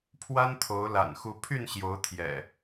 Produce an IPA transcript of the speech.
pʰ w a˦ n t̪ʰ o˨˦ ʊ̯ l a̰˨˩ n x u˨˦ pʰ y˥˨ n ɕ j o˨˦ ʊ̯ t̪ʰ j ɛ̰˨˩

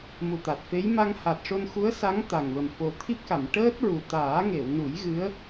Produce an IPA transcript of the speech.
m u˨˩ t̪ a˨˩ t̚ f e˧˥ j m a˧ ŋ h a˨˩ t̚ ʂ o˧ n x u˧˥ ə̯ s a˧˥ ŋ t̪ a˨˩ ŋ v ə˨˩ m f o˨˩ t̪ʰ i˦˥ p̚ k a˨˩˨ m ʈ əː˦˥ t̚ ɹ u˨˩ t̪ aː˨˩˦ ŋ e˨˩˨ w n u˨˩˦ j ɣ ɨ˧˥ ə̯

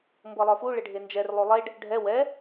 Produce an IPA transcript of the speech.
m b ɤ lˠ ə˞ f u ɭ ɪ ɖʱ e n d͡ʒ ɛ r lˠ ʉ lˠ e ɖ | ɖʱ ɛ w ɛ

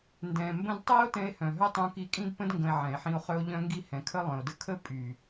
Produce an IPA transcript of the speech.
n d ɛ̃˨ m b ə̃˧ d tˤ ɛ˦ o̯ t ɛ̃˧ e̯ h œ̃˨ ɦ œ˦ tˤ ũ˧ k i˧ kʼ ĩ˦ d p ə̃˦ d ŋ ɡ ə̃˧ e̯ ʕ ɛ̃˨ e̯ ħ ĩ˧ o̯ χ œ˦ o̯ ʎ œ̃˧ ŋ ɡ i˧ h ɛ̃˨ kʰ ə˧ lˠ œ̃˨ o̯ d ə˧ kʰ ə˦ pʼ y˨

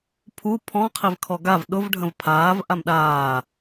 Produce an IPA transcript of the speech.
pʰ u pʰ ɔ̃ qʰ i v kʰ ɔ ɡ a v ɗ ʊ v ɖʱ ə̃ v pʰ aː v ʔ a m ɗ aː

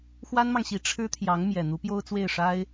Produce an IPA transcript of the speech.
x w a˥ n m ɑ˨ ŋ ɕ i˧˥ ʈ͡ʂʰ ɻ̩˥ t̪ʰ j ɑ˧˥ ŋ m j ɛ˨˩ n̪ u˧˥ p j o˥ ʊ̯ t͡s w e˥˩ ɪ̯ ʂ a˥ ɪ̯

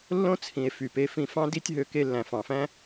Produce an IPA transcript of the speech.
lː õ˦ t͡sʰ ĩ˨ e̯ f y˨ p e˧ f ĩ˨ f ɑ̃˧ d i˦ tʲ ɦ ø˧ k e˧ lː æ̃˨ f ɑ̃˨ f æ̃˦

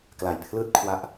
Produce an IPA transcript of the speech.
k l a˨˩ j pʰ l ɯː˥˩ t̚ kʰ w a˦˥ ʔ

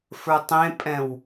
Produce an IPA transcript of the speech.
f ə˞ tˤ ẽ pʼ ɛ̃ w

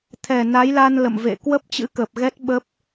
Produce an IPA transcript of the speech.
t̪ʰ ɛ˨˩ n a˨˦ j l a˧ n l ə̰˧˨ m v ḛ˧˨ k w ə˦˥ p̚ t͡ɕ ɨ̰˧˥ k əː˨˩ p̚ ɣ ɛ˦˥ t̚ ɓ ə˦˥ p̚

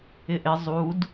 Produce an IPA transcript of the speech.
ɪ ʔ ɪ zˤ u d

